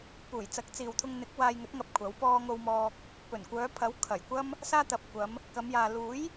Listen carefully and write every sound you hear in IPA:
p uː˨˩ j t͡s ɐ˨˥ k̚ t͡s iː˨ w t̪ʰ ʊ˧ ŋ n̪ ɪ˨˥ k̚ w aː˧ j ŋ ɵ˨˥ t̚ ŋ ɐ˧ p̚ kʷʰ ɐ˨˥ w p ɔː˥ ŋ o˧ w m ɔː˧ k̚ | p ɵ˨˩ n kʷ œː˨˧ pʰ ɐ˨˥ w kʰ ɐ˨˩ j kʷ ɐ˥ m | s aː˥ t̪ ɐ˨ p̚ kʷ ɐ˨˧ m | k ɐ˨˧ m j aː˨ l uː˨˥ j

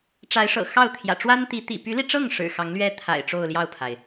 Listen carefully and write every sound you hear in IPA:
ʈ͡ʂ a˧˥ ɪ̯ ʂ ɤ̰˨˩ x ɑ˥˩ ʊ̯ t̪ʰ j ä̰˨˩ ʈ͡ʂ w a˥ n t̪ i˧˥ t̪ ḭ˨˩ p y˧˥ l i˧ ʈ͡ʂ ɤ˥˩ ŋ ʂ ɻ̩˨˩ x ɑ˧˥ ŋ l ɥ ɛ˥ t̪ʰ a̰˨˩ ɪ̯ ʈ͡ʂ o˥˧ ʊ̯ l j ɑ˥˩ ʊ̯ pʰ a˩ ɪ̯

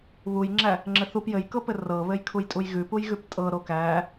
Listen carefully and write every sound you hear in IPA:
β u j ŋ͡ǁ æ | ŋ͡ǁ ɘ θ u p j ɘ j k ɤ p ɘ r ɤ β ɘ j kʰ u j tʼ u j ɣ ʉ p u j ɣ ʉ p tʼ ɤ ɾ o k æ

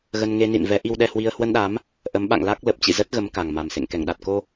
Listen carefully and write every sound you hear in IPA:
ɣ ə˧ n ŋ e˧ n ḭ˧˨ n v ɛ˨˦ ʔ i˧ w ɗ ɛ˧ h w i˧ ə̯ h w ə˧ n ɗ a˨˦ m | ʔ ə˨˦ m ɓ a̰˧˨ ŋ l a˦˥ k̚ l ə˨˩ p̚ t͡ɕ ḭ˧˨ z ə˦˥ t̚ ɣ ə˨˦ m k a˨˩ ŋ m a˨˩ m s ḛ˧˨ ŋ k ɛ˧˩ ŋ ɗ a˨˩ t̚ k o˧

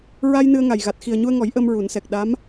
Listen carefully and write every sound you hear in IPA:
ɹ a˧ j n ɨ˧ ə̯ ŋ a˨˩ j ɣ a˨˩ t̚ x i˨˩ ə̯ ɲ u˧ ə̯ ŋ ɔ˨˩˦ j ʔ əː˧ m ɹ u˨˩˦ n s ɛ˨˩ k̚ ɗ a˧˥ m

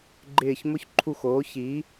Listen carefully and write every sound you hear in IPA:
ɡ͡ǃ ɪː˦˨ ç m ʊ˥ ç ǃʰ u˦˨ x oː˨˥ ç iː˨˥

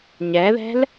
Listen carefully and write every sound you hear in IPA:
ɲ ɛ ð ɛ̤ l

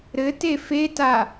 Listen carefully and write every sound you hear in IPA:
ɾ ɘ t e f e t a

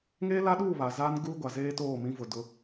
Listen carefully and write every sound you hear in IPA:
ŋ eː˦ l a˦ ɗ uː˦˨ β a˨ z aː˦ n ɡ uː˦ ɡʷ a˨ z eː˦ t oː˦˨ m ĩ˦ v ʊ˨ d ʊ˦

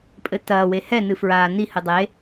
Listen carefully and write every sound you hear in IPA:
pʼ ɘ t ɐː w e h ɛ n ɨ f ɹ aː n i h ɨ dˤ e

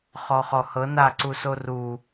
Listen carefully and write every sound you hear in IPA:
χ ɔ χ ɔ h ɤ n a ǀ u s o r u

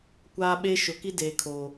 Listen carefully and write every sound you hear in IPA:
kʷ aː˦ ɓ eː˦ ʃ ʊ˨ k i˦ d eː˨ kʰ o˨

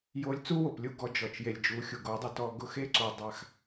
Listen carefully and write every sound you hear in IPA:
j o˧ lʲ t͡s u˦ w o˨ p lʲ u˦˨ ɡ ɔ˦ d͡ʒ ɔ˧ t͡ʃ j e˧ lʲ d͡ʒ u˨˦ xʲ u˨ ɡ o˨˦ dˤ ʊ˧ t ɔ˧ ɡ ʊ˦ x e˦ ǀ u˨ dˤ a˧ x

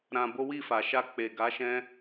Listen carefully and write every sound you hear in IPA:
ɾ ã˧ b o˦ w i˦˨ f a˨ ʃ a˧ k͡p e˨ ɡ a˨˦ ʃ ɛ̃˦

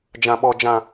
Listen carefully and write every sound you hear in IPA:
d͡ʒ ã˨ ɓ ɔ˨ d͡ʒ ã˨

